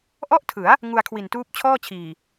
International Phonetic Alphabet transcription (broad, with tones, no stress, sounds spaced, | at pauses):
ʔ ɔ˥˩ ʔ tʰ ɯ˩˦ a̯ | ŋ u˧ a̯ kʰ w i˨˩ n t uː˦˥ p̚ t͡ɕʰ ɔː˥˩ t͡ɕʰ iː˨˩